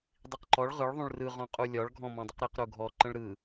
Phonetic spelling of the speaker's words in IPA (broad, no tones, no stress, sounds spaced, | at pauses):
dˤ i q ǃ ɔ ɭ ʁ ɯ ɭ ðˤ ũ ɭ r ɯ ʁ ɔ̃ qʼ u lʲ ɒ ɭ ɡʱ ɔ̃ m ɔ̃ dˤ ə q ɾ i q ɾ u ɡʱ ɔ ǃ ə̃ ɭ ɾ ɯ